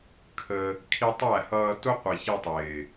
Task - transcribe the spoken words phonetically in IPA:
kʰ ə˧ | kʰ i˧ tˤ æ˦˨ h ʌː˧ t ʊ˦ qʷ i˨ ç i˧ tˤ ɪː˨

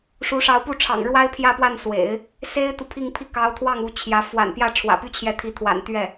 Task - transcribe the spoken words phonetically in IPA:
ʂ u˧˥ ʂ ɑ˧˥ ʊ̯ p u˥˩ ʈ͡ʂʰ ɑ̰˨˩ ŋ ɻ w a˥ ɪ̯ pʰ j ä˥˧ p w a˥˩ n s w ḛ˨˩˦ ɪ̯ | s e˥ ɪ̯ t̪ u˨ pʰ i˥˧ ŋ pʰ i˥˩ k ɑ˧˥ ʊ̯ t̪ʰ w ɑ˥˩ ŋ u˧˥ t͡ɕʰ j ä˧˥ f w a̰˨˩ n p j ä˥˩ ʈ͡ʂʰ w ä̰˨˩ p y˥ t͡ɕʰ j ɛ˧˥ t̪ʰ i˧˥ t̪ʰ w a̰˨˩ n t̪ ɥ ɛ˥˩

